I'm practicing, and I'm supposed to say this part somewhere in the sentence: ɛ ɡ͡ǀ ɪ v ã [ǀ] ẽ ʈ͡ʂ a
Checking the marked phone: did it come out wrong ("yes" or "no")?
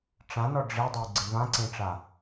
no